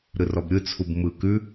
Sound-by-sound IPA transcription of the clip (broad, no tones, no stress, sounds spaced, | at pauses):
ɾ ɯ r ɔ b ɾʲ ɯ t͡sʰ u b m ɯ k ʉ